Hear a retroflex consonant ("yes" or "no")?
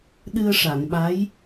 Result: yes